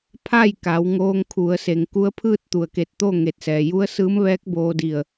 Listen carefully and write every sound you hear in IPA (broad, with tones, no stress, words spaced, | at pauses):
pʰa˥˨jka˩˧w ŋoː˧ŋkʰu˩˧ə̯se˩ŋ ku˧˥ə̯pʰɯː˥˨t̚ t̪u˩ə̯ke˧˩t̚t̪o˥˨ ŋe˧˩t̚sɛː˩ ju˧˥ə̯sɯː˧˥mʋɛː˧˥k̚ boː˧di˧˩ə̯